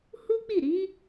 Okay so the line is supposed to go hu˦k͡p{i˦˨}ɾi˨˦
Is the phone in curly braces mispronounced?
no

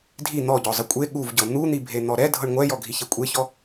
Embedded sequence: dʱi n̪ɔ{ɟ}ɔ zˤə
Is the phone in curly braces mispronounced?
no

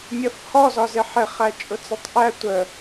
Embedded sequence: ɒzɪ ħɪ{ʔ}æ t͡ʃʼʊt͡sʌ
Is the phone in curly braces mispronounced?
yes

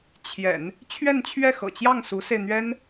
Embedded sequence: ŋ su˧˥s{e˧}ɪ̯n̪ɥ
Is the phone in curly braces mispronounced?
no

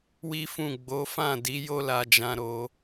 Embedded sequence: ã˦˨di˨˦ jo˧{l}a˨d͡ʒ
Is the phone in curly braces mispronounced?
no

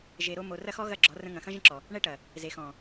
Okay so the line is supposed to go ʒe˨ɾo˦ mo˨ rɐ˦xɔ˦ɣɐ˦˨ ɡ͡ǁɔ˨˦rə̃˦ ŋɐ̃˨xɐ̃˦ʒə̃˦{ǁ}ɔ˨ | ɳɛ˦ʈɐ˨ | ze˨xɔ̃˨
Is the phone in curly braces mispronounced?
no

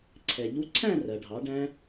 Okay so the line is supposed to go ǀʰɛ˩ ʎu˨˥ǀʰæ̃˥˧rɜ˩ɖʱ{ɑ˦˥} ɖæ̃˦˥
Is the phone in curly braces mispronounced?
yes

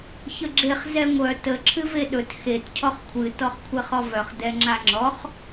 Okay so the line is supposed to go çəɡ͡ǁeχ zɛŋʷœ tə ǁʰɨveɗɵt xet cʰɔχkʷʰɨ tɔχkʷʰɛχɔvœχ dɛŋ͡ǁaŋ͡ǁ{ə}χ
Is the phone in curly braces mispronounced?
yes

